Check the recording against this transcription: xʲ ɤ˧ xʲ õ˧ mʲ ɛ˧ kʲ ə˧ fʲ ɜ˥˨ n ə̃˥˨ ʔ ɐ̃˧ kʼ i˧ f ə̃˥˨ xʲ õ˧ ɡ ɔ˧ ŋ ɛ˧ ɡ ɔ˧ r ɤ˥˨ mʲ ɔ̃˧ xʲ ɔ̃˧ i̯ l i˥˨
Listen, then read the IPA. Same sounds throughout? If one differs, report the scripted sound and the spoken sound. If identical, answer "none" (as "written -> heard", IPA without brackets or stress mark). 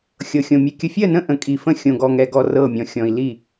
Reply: ɐ̃˧ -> ə̃˧